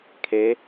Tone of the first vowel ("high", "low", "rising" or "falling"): rising